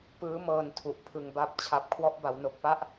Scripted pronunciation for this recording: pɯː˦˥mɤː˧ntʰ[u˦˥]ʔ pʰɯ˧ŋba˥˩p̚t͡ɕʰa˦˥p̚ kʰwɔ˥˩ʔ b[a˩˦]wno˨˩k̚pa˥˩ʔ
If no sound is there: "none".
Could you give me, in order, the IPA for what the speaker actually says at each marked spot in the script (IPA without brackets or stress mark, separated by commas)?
u˨˩, a˩˦